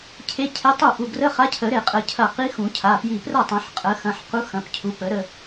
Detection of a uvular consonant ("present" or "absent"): present